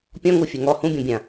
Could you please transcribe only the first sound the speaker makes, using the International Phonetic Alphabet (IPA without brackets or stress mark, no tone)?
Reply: pʲ